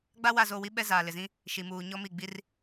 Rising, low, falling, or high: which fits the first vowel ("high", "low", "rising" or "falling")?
high